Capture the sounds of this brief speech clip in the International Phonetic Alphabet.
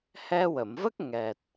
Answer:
hɛ˧wə˨˩˨mvə˦˥k̚ ŋɛ˨˩t̚

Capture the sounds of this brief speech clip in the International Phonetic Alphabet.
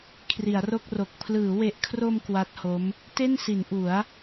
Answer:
kʰri˩˦a̯ro˥˩k̚ro˨˩k̚ pʰlɯː˩˦we˨˩ʔkʰro˧m kwa˦˥t̚ho˦˥m | te˥˩nsi˩˦n ʔu˩˦a̯

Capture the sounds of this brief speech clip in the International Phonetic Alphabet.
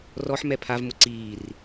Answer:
rɔħ mɛpʰav mʊǀiːr

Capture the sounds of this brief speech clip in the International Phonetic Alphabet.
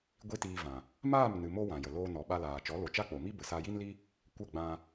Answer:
ɡʷi˦tiː˧vã˨ | maː˦˨mnɨ˨mo˧ wã˨jə˨ loː˧nɔ˨ɓa˧laː˨ t͡ʃɔ˨˦lo˨t͡ʃa˦ k͡po˨mi˦ bə˨sa˧ji˦nli˦ | kʷə˦˨ɡ͡bã˧

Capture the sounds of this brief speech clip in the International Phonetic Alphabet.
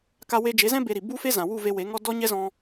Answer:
ka˧we˧d͡ʒe˨˦zɛ̃˦ be˧ɾi˨ bu˦fe˦ zã˨wu˦˨ve˧ we˨˦ŋɔ˦ dɔ˦ɲɛ˦zɔ̃˧

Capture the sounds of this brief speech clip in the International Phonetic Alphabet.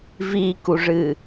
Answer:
vikuʐɨ

